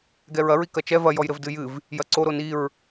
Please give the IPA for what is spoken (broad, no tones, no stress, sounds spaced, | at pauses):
ɡ ɛ ɹ ɐ ɹ i k ɐ t͡ʃ ɛ v ɐ j ɔ j ɾ ɘ v d ɨ j ɨ v | j ɐ ǀ o ɾ o n i ɹ